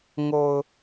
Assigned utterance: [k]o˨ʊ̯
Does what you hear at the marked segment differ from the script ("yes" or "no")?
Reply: yes